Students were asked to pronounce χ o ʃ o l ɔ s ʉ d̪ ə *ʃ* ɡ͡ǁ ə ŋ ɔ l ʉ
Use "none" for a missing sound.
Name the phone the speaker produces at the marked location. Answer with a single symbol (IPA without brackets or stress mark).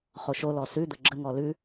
none